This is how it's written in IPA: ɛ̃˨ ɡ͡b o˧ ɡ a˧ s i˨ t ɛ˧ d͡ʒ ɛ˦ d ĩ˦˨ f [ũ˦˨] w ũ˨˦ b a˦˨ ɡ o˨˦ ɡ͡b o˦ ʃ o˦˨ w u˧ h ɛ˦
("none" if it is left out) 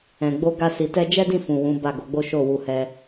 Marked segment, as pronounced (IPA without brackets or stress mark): ũ˨